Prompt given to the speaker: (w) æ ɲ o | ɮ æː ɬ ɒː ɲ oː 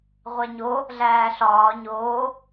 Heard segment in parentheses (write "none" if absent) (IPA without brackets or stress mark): ʁʷ